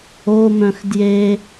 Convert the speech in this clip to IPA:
o m œ̃ x d j e

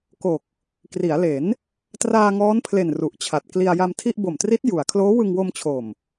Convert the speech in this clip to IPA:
k o˨˩ k̚ | k r i˩˦ a̯ l e˩˦ n | t r aː˧ ŋ ɔː˦˥ n pʰ l e˨˩ n r u˨˩ ʔ t͡ɕʰ a˨˩ t̚ k l i˧ a̯ j a˧ m tʰ i˥˩ ʔ b o˨˩ m t r i˦˥ t̚ j u˩˦ a̯ kʰ l oː˦˥ w ɯ˧ ŋ w o˧ m t͡ɕʰ o˨˩ m

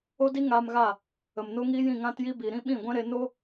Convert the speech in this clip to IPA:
o˦ d i˦ ŋ aː˧ m ɣ a˦˨ | ə˨ m n o˦ ŋ iː˦ j ĩ˦˨ ŋ ã˦ t j i˦ b i˨ ɾ ĩ˦ ɓ ĩ˦˨ ɡʷ ɛ̃˦ ɾ e˧ n o˦

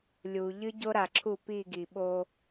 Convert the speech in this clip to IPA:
lʲ u˨ ʎ ɨ˦ ɟ o˦ ɾ a˨ ǁʰ u˦˨ p i˦˨ ɡ i˨ ɓ o˦

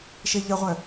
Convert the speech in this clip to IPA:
ʃ e ʎ ə ʁʷ œ

